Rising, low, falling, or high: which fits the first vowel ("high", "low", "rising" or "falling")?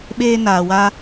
high